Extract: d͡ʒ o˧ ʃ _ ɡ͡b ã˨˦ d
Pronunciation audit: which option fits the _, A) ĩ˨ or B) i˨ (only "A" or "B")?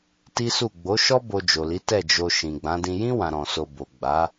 A